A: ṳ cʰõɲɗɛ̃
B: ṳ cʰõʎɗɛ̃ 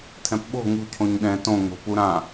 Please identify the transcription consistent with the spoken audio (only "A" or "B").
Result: A